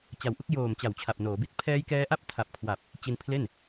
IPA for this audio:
t͡ɕ a˨˩ w ʔ u˥˩ k̚ j oː˨˩ m t͡ɕ a˩˦ w t͡ɕʰ a˨˩ p̚ n oː˩˦ b i˦˥ t̚ pʰ ɛː˦˥ j k ɛː˦˥ ʔ a˥˩ p̚ tʰ a˨˩ p̚ kʰ w a˨˩ p̚ | t͡ɕ i˧ n pʰ l e˥˩ n

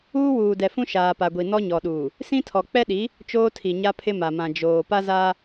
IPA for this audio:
uː˦ w uː˨ d ɛ˨ f ũ˦ ʃ aː˨ p a˨ ɡʷ i˨ n ɔ˦ ɲ ɔ˨ ɗ uː˨ | s ĩ˦ tʰ ɔ˨ k͡p ɛ˦ ɗ i˨˦ | t͡ʃ oː˦ tʰ i˨ ɲ a˦ pʰ ɪ˦ m a˨ m ã˨ d͡ʒ oː˨ p a˦ z aː˦

